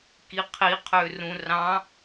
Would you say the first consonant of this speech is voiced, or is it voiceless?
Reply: voiceless